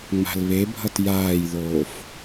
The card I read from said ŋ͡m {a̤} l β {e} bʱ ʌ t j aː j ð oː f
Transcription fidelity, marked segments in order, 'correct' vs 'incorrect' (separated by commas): correct, correct